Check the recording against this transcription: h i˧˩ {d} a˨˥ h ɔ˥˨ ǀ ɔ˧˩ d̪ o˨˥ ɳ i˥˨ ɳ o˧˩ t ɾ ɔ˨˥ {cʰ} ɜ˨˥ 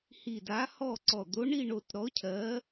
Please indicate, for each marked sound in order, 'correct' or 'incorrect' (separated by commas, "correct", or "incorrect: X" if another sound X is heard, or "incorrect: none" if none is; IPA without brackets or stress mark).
correct, correct